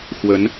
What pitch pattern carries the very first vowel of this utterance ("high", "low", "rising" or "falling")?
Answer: rising